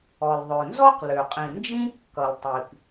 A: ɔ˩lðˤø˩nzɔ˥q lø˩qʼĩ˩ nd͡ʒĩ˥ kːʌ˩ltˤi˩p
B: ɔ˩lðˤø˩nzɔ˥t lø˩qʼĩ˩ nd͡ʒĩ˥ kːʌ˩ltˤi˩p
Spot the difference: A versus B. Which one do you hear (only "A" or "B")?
A